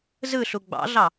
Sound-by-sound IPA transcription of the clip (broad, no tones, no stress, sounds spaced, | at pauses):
z ɯ ɬ u ɡ͡b ɑ̰ ɮ ɑ